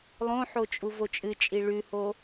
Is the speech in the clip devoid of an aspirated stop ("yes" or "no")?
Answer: yes